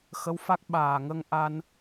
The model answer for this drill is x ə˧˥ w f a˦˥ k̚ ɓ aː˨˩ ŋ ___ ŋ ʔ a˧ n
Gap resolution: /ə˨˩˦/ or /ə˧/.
ə˧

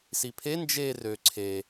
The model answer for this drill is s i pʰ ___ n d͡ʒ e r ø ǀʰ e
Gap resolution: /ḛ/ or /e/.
e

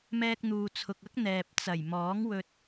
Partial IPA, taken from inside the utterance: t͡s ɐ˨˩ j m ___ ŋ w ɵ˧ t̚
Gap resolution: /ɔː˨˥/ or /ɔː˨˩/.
ɔː˨˥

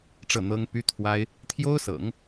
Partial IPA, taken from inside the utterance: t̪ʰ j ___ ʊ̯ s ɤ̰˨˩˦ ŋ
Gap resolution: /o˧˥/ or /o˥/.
o˥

